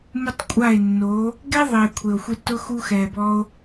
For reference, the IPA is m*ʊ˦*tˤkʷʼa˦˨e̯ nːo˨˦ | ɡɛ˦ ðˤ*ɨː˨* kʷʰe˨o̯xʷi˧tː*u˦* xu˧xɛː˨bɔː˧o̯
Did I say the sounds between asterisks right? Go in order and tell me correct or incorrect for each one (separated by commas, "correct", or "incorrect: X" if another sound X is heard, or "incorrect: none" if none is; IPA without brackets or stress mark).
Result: correct, incorrect: ɪː˨, incorrect: ʊ˦